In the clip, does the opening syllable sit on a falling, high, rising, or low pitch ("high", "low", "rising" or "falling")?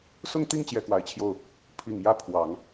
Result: falling